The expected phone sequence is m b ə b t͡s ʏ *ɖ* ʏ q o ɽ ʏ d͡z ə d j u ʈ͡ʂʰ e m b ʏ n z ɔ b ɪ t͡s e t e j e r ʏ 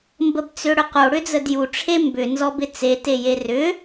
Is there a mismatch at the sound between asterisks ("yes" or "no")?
yes